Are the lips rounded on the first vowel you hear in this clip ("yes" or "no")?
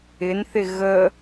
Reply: no